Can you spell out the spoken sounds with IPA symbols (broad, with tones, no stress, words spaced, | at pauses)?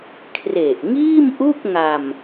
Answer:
kʰre˨˩ʔ ŋiː˥˩mʔu˥˩k̚ŋa˧m